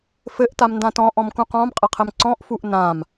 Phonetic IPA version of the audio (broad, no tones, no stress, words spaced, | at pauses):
fɘʔ tamndãtɔ̃ ʔɔ̃mkũqɔ̃m qʼɘqʰɘmǀɔ̃ʔ fuʔnãm